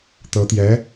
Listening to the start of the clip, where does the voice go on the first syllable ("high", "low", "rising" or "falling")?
rising